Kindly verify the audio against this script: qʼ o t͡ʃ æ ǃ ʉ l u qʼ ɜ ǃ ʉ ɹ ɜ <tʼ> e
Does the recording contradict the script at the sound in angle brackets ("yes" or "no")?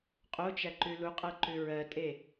no